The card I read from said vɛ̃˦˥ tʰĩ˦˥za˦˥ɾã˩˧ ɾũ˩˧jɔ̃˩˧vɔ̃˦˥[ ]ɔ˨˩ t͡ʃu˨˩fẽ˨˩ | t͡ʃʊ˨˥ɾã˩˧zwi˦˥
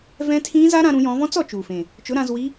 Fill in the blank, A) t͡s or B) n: A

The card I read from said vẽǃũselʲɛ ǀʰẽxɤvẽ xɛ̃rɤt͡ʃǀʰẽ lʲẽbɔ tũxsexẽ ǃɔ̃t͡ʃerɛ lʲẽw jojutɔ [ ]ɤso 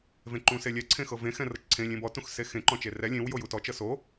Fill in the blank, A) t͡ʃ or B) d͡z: A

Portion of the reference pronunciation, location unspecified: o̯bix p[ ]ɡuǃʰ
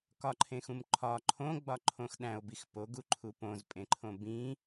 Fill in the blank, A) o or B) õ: A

